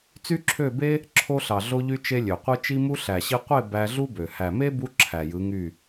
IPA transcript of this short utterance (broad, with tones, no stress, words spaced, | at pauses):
t͡sy˦ǁʰø˦˨ be˦ | ǁʰo˧ɬɑ˨ɮo˧ʎy˧ t͡ʃe˧ lʲø˨qʷɯ˦ t͡ʃi˦mu˦ ɬæ˨ɕi˧qʷe˦˨ bæ˧ɮu˦bø˨ hæ˨me˦bu˧ ǁʰæ˨jɯ˨˦ŋy˦˨